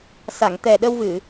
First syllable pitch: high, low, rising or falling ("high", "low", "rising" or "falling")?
low